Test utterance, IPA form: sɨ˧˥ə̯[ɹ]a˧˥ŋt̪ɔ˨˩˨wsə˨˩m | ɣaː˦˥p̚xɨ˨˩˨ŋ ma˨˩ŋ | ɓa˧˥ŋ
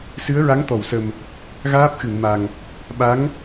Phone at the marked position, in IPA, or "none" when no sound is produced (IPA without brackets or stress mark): ɹ